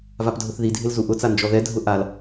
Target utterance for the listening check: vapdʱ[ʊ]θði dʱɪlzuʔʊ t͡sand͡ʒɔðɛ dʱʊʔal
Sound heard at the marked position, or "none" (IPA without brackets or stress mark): ʊ